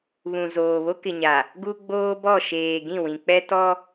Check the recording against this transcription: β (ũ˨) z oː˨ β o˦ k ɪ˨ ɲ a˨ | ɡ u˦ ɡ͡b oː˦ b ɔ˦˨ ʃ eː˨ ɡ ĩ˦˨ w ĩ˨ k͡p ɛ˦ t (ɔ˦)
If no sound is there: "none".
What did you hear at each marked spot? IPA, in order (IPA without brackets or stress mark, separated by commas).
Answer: ũ˨, ɔ˦